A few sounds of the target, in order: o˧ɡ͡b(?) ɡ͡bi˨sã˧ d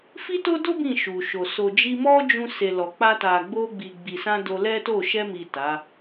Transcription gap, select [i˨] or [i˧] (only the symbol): i˨